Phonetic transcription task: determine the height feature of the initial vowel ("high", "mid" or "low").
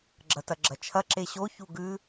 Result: low